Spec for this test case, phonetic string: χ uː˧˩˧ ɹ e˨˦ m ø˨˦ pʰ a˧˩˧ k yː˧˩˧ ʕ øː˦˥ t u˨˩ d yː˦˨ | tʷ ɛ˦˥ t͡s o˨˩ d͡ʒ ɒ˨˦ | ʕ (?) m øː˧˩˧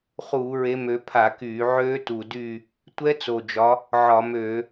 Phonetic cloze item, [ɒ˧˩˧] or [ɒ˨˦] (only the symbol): ɒ˧˩˧